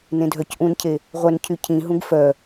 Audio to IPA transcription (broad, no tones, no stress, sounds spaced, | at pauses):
n ẽ dʱ œ c ʔ ũ n cʰ e | ʁʷ œ n cʰ y cʰ ĩ ɦ ũ ɡ f œ